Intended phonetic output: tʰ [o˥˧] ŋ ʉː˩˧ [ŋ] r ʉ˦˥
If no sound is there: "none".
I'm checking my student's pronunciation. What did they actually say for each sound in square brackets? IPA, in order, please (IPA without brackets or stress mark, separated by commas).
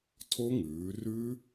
o˦˥, none